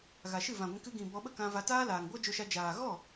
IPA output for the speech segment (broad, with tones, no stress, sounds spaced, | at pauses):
ɣ a˨ ʃ ɨ˦˨ v ã˨ ɡʷ ĩ˧ k ɨ˧ ɡ ĩ˨ b ɔ˧ ɓ ə˦ k ã˧ v a˧ t aː˦ l aː˨ ŋ ɡʷ a˦ d͡ʒ o˧ ʃ a˧ d͡ʒ aː˨ ɣ ɔ˦˨